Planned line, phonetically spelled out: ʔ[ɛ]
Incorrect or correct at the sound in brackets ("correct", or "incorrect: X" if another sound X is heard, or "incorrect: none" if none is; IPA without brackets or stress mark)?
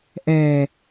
correct